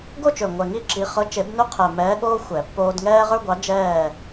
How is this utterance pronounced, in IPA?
ɡo˥˨t͡ʃø˨˩ ŋʷɛ˨˩ŋi˥˨ǁi˨˦ χɤ˨˦t͡ʃe˨˩˦bnø˦ qʰɛ˨˩ mɛː˨˦ɠoː˦ xʷɛ˨˩˦pːoː˦d ŋɛː˦ʁə˞˦ɡʷɑ˨˦ d͡ʒɛː˥˨

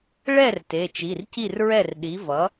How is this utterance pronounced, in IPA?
ɭɛ˥˩r te˩˧˩t͡ʃi˩˧˩rci˥˩rɹɛ˥˩r ɗi˩˥vʌ˩˥

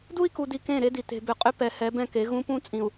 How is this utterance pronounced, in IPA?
du˦i̯ku˨di˨ kẽ˦˨ɾe˦di˨ te̤˨bʏ˨qʼʏ˦ pɛ˨hɛ˨˦ bɛ̃˦ke˨˦ɣũ˦ pũ˦t͡sʼĩ˨u̯

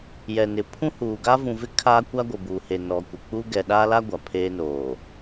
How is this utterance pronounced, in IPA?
jɛ˨nɪ˨ pʰũ˦huː˨ ɡa˦vũ˨vɪ˦ kʰaː˦ kʷa˦ɡʷɪ˨buː˨he˨ nɔ˨kʷɪ˨ k͡pu˦ ɡɛ˨ɗaː˦la˦ ɡʷa˨pʰeː˦noː˨

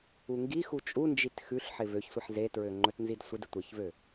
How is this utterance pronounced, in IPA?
uŋɡixu t͡ʃʼund͡ʒit xʉɬħɪ vøçsʷɪħ zetɹø ŋ͡ǃɵtnzidsʷɪdɪ tʷɪçvø

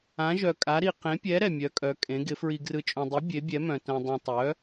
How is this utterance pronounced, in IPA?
ã˧˥ʒœ˧kʼa˧˥ɾi˧ qẽ˧˥pʲɛ˧˥ ɾɛ˧mʲœ˧˥kʼœ˧˥ kʼẽ˧˥ɡɪ˧˥ fɹi˧ɡrɯ˧t͡ʃʼõ˧dˤi˧˥ bʲe˧˥bʲɛ˧˥mœ̃˧ tœ̃˧dˤĩ˧tˤœ˧˥

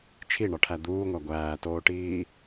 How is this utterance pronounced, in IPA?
t͡ʃʰiɳɒʈʰæ d̪uːŋʷæ ɡʷæːtoːʈiː

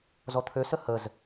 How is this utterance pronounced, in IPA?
zɔt̪ʰøsə həz

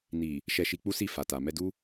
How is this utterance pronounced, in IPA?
ni˨ | ʃɛ˧ʃi˧k͡pu˦si˦˨ fa˨ta˨ mɛ˧du˦

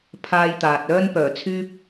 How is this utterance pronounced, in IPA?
pʰaː˥jt̪aː˨t̚ œː˥npœː˨˩t͡sʰyː˥p̚

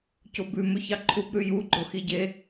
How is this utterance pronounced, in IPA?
cobʉ mɵçɑǃʰub ɾʉju ɡ͡ǃoxiɟe

